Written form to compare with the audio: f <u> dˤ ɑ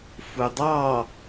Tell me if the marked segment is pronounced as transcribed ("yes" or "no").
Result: yes